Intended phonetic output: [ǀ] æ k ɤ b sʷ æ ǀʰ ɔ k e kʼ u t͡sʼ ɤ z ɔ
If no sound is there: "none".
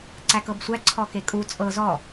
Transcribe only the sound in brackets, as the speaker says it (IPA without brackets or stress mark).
ǀ